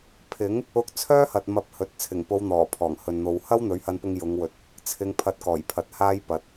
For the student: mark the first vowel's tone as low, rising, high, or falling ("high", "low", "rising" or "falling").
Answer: rising